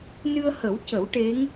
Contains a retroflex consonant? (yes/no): yes